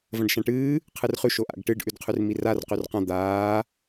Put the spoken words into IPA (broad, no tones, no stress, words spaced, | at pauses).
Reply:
vɐ̃ɖʃãʈɨː | qʰɨrχʉ ʃoʔa̰ɡ ʈɨɖ ʔʉdqʰʉrmirar qʉrqã d̪aː